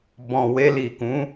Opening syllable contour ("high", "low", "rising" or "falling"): low